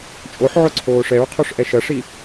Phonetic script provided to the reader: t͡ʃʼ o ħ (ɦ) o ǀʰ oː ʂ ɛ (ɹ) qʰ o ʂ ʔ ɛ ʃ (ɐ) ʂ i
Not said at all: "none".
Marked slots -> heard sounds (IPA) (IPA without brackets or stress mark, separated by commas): ʕ, ɹ, ɐ